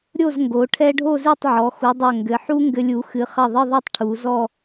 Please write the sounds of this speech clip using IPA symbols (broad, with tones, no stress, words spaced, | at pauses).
ɾʲo˥˧zŋɡo˩˧ ʈʰɛ˥ ɖʱo˥˧ze˥˧tˤʕɔ˩˧ xu˩˧dˤo˧˩ ŋɡɘ˩˧ ħu˥ŋɡɘ˧lʲu˩˧ xɨ˩˧χɐ˧˩ ðˤɘ˥˧ðˤɛ˥˧tˤ ʈʰu˩˧zɔ˥˧